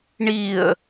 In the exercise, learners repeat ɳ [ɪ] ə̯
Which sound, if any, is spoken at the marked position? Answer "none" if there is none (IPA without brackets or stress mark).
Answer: i